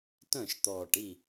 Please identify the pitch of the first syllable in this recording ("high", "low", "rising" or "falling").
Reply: falling